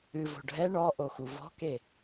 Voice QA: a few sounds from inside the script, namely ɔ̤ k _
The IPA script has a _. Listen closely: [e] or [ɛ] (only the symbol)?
e